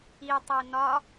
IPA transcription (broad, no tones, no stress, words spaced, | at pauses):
itˤi nɒ